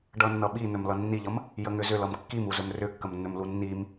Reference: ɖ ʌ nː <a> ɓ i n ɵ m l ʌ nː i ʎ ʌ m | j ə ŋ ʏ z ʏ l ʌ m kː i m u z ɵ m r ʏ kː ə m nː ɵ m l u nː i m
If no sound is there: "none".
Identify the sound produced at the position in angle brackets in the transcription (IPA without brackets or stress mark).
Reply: ʌ